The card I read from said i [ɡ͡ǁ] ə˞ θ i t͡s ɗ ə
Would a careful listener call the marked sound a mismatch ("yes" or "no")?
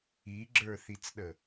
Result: no